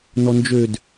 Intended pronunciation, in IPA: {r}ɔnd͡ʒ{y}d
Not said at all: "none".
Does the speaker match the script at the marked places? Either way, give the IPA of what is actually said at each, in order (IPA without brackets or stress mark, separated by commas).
n, ø